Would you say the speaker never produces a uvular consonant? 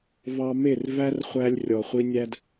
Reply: no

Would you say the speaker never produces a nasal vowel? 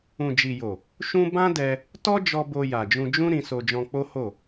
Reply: no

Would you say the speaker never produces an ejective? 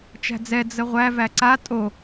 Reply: no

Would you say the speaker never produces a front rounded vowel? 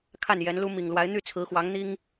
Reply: no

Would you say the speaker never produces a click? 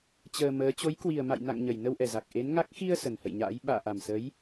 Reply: yes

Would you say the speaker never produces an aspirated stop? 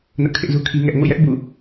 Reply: no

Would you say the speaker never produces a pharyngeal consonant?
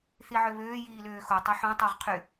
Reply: no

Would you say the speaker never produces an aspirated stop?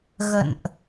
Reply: yes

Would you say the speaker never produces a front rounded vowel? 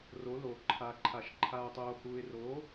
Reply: yes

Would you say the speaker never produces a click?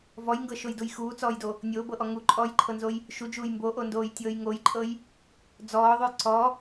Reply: no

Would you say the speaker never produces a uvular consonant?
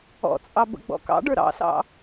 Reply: yes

